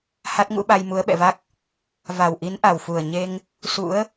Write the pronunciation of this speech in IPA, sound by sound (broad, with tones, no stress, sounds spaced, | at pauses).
h a˦˥ t̚ ŋ ṵ˧˥ ɓ a˧ j m u˨˦ ə̯ ɓ ɛ̰˧˨ v a˦˥ k̚ | v a˨˩ w ʔ i˨˦ n ʔ a˨˩ w f u˨˩ ə̯ ɲ e˧ ŋ | s ṵ˧˥ ə̯